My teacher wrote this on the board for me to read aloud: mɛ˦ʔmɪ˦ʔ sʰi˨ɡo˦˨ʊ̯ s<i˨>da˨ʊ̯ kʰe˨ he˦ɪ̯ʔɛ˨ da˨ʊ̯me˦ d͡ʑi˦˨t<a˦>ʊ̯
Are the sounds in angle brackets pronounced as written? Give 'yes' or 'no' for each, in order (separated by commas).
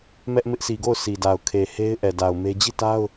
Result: yes, yes